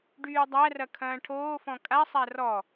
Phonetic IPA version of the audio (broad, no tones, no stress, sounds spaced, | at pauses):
ɖ yː dˤ æ r ɐ kʰ ɐ̃ː ʈʰ oː f ɔ̃ kʼ a sˤ æ r ɔ